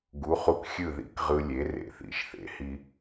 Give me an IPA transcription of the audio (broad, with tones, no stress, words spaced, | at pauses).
ɡu˩˥χu˧kxʲɯ˥˩ ðḭ˥kʁɯ˧lʲe˩˥ rḛ˩θḭ˩˥ʃθḛ˩hi˧